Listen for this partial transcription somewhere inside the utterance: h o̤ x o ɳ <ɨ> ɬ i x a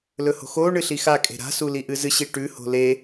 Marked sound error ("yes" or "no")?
no